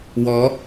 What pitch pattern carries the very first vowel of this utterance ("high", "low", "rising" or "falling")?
rising